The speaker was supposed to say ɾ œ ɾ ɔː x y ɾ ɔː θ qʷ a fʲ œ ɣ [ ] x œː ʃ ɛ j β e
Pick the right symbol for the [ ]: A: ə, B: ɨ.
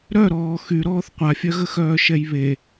A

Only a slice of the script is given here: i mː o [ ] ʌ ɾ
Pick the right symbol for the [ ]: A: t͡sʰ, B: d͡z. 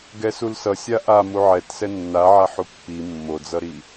B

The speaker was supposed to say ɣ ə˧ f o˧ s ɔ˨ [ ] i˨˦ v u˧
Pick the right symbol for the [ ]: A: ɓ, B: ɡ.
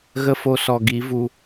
B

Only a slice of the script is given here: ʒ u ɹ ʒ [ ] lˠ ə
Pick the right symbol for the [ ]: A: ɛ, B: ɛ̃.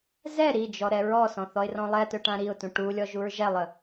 A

